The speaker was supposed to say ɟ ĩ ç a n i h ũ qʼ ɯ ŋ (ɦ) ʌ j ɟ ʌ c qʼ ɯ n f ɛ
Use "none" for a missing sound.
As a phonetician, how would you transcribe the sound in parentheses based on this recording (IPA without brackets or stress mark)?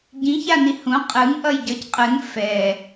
ʔ